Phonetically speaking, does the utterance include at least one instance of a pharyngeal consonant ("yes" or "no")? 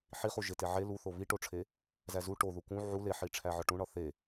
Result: yes